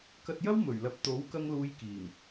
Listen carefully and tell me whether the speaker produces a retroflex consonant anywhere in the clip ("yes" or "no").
no